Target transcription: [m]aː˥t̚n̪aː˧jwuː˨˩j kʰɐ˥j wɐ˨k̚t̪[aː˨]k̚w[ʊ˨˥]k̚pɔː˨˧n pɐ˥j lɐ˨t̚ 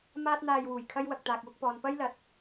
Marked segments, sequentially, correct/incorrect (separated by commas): correct, correct, incorrect